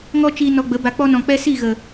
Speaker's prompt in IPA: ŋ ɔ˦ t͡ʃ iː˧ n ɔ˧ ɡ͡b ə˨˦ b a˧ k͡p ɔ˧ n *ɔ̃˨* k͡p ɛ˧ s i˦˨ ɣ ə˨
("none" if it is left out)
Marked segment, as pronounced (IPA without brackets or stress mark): ɔ̃˨